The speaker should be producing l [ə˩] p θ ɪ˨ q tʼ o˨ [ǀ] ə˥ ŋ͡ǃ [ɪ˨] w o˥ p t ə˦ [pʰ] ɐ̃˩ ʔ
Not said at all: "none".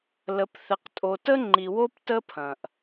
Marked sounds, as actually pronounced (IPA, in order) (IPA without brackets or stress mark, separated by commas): ə˨, t, i˨, pʰ